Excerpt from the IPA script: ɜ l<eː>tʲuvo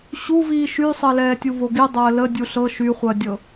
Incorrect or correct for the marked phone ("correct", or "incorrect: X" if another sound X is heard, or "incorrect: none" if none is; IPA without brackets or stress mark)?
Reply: incorrect: ɛː